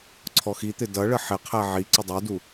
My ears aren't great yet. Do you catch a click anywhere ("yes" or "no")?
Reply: yes